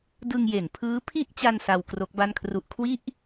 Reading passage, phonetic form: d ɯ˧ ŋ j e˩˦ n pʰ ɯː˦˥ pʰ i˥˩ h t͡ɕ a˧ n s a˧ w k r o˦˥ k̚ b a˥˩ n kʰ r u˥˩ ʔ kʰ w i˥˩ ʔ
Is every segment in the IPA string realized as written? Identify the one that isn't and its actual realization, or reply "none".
h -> ʔ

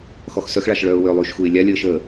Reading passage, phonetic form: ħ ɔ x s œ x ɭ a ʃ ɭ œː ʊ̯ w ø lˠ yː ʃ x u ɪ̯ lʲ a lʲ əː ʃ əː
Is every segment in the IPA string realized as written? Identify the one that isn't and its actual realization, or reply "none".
ħ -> x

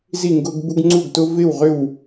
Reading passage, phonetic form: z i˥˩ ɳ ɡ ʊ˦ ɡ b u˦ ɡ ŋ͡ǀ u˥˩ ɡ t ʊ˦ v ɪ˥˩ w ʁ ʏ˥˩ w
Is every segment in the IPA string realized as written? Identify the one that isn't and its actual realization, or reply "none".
ɳ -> ŋ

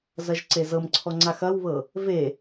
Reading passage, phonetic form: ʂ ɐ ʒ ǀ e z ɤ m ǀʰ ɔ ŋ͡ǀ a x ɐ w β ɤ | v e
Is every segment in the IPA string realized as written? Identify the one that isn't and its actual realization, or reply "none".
ʂ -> z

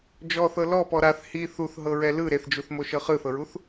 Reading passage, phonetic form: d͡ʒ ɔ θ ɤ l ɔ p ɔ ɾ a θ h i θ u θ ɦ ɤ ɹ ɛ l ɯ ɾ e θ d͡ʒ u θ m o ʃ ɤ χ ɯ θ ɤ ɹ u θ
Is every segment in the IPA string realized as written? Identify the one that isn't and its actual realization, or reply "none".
none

